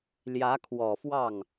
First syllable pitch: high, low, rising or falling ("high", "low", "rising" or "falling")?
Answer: rising